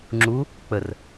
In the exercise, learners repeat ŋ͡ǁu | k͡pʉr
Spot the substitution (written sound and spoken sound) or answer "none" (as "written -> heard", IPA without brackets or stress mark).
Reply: ʉ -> ə